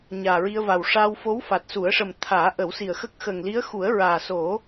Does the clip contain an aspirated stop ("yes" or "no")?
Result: yes